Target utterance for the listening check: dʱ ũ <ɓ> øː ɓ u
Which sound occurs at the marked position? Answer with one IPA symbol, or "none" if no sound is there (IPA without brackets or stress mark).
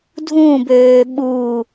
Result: b